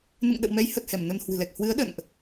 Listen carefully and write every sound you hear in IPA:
nɨ̰˧˨ŋɗə̰˧˨wmɛ˨˦jhə˨˩t̚ hɛ˧˩mnə˧nhwɨ̤˨˩lɛ˨˩k̚ hwɨ˨˦ə̯ ɗə̰˧˨nʔ

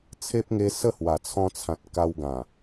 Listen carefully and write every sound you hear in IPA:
t͡sʰe˦p̚ŋe˧ sə˥˧hwa˨˩t͡sʰɔ̃˧t͡sʰã˨t̚ ka˧wɡã˨˩

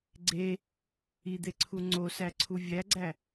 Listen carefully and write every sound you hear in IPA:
ɡ͡ǀe | id̪eǀʰu ŋ͡ǀosæǀʰu vʲæɡ͡ǀæ

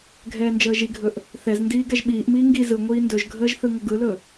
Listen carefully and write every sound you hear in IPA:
ɡʱɛːnd͡ʒəːʒiɡʱɵʔ | θɛzndiː ɡɛʒɓiːʔmiː ŋɡi zɯ ŋʷiːndɵʒɡʱəːʒ θɯŋəɡɯlɵ

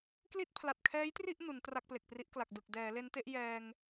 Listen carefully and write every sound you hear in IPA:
kli˥˩t̚pʰla˨˩t̚kʰɛː˦˥jtri˥˩ʔ nu˩˦n tra˥˩k̚ple˨˩k̚pri˦˥ʔkla˨˩k̚ dɯ˨˩k̚ dɛː˩˦ le˦˥nte˦˥ʔjɛː˧ŋ

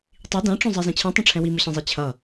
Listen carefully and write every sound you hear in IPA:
tˤi dãʈ͡ʂõzˤɛzẽ t͡ɕʰĩtˤĩʈ͡ʂʰɛ̃ wimɯɕẽzˤe t͡ɕʰʌ

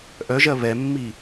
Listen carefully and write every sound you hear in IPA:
ʔœʒɜ βɛmːi

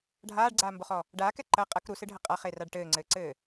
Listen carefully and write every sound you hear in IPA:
ɖʱaːɖɡ͡ǀaːmboχɔ | ɖaːkɛ ǃɐ qʼɐk ɾusɨɖʱɐ qʼaχeraɖ ʈɘːŋ͡ǀɘːǀɘː

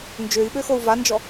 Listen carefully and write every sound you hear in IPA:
nd͡ʒøi̯ɓøxou̯ vand͡ʒɔ

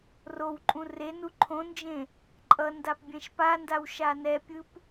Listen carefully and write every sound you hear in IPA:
rowǃʼũ renu ǃʰõnd͡ʒẽ | ǃʼʌndap bʲɛ̃ʃpandaw ʃanɛpʲɯp

